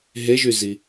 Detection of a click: absent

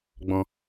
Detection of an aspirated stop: absent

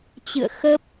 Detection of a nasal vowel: absent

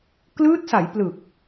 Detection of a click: absent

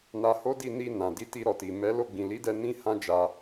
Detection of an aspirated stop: absent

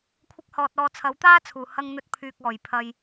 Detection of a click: absent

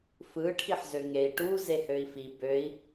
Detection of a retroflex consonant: present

